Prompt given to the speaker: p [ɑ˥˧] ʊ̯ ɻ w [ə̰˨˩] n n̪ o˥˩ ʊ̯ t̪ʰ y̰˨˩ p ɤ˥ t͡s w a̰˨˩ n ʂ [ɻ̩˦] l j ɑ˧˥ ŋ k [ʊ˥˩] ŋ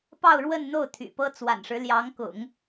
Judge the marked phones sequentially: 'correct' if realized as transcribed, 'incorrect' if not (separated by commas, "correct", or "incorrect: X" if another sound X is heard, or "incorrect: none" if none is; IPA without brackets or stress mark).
correct, incorrect: ə˥˧, correct, incorrect: ʊ̰˨˩˦